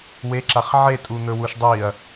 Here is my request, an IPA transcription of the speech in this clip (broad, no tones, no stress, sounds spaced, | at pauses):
w e ǁ a χ ʕ e tʼ u n̪ ɵ w u ʃ dˤ i ɐ̯